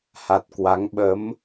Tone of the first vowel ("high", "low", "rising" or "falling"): low